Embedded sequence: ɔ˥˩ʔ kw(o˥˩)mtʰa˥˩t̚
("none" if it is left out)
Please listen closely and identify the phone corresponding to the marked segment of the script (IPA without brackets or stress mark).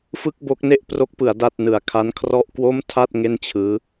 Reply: o˥˩